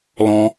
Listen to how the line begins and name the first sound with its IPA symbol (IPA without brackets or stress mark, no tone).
l